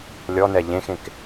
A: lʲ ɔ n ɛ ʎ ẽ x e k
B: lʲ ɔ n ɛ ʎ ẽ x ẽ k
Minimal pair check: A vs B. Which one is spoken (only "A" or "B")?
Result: B